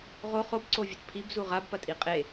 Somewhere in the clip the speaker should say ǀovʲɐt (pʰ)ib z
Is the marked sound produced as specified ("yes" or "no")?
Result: yes